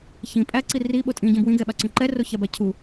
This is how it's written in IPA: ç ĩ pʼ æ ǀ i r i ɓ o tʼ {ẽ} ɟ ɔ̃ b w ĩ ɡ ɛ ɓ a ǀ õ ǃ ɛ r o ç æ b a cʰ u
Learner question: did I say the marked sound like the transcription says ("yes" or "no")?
no